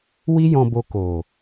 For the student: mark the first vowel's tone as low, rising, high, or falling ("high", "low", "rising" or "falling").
high